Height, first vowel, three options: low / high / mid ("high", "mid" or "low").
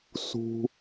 high